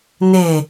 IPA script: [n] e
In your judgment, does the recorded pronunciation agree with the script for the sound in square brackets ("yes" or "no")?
yes